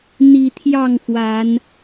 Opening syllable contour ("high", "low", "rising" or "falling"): low